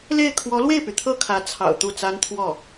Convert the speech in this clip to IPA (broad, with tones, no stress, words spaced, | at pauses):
le˥˩ɪ̯ kʰwɔ˧˥lwe˥˩ɪ̯py˩ t̪ʰɤ˥˩kʰä˧˥t͡sʰɑ̰˨˩ʊ̯ t̪u˥˩t͡sa˥nt̪ʰwɔ˥˩